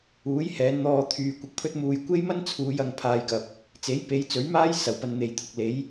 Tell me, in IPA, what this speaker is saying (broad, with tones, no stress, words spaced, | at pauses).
uː˨˥jhɛː˨˧nn̪ɔː˧ t̪ʰyː˨kʷɪ˨k̚pʰɵ˥t̚muː˧j kʷe˥jmɐ˥nt͡sʰuː˨˧j ɐ˧ŋpʰaː˧jkɐ˨p̚ | t͡se˨˥jpe˨˥jt͡sɵ˨˥ɥmaː˥j sɐ˨˩wpɐ˧nn̪e˨jt̪ʰʊ˨k̚ le˨˥j